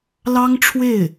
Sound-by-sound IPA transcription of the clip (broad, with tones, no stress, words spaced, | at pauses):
lɑ˥ŋʈ͡ʂʰwe˥˩ɪ̯